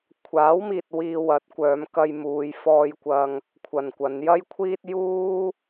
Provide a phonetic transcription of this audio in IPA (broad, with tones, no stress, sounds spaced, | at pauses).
kʷʰ aː˨˥ w m iː˨ t̚ w iː˧ w ɐ˨˥ t̚ kʷ œː˨˧ m k ɐ˧ j m uː˨˧ j f ɔː˧ j kʷ ɐ˧ ŋ | kʷʰ ɐ˨ n kʷ ɐ˨˧ n j ɐ˥ j kʷʰ iː˥ t̚ j uː˥